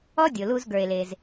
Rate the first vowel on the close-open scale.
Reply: mid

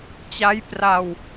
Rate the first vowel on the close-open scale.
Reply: open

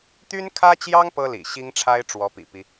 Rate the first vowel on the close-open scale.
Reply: close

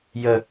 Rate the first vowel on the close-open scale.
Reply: mid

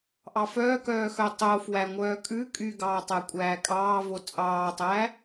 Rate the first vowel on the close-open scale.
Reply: open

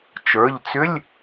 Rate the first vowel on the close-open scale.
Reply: mid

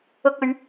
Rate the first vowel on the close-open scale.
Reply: close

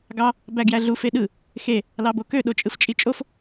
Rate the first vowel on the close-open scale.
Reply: open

